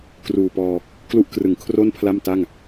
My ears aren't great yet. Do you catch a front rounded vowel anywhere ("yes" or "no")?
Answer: no